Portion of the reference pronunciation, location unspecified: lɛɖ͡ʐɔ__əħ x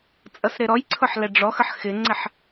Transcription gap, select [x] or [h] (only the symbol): x